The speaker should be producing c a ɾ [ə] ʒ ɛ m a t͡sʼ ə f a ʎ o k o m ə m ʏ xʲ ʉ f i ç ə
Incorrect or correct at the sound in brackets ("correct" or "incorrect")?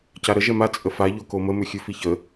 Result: correct